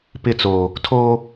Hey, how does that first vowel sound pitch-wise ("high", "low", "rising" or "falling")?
falling